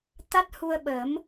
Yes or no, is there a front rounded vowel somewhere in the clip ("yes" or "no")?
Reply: no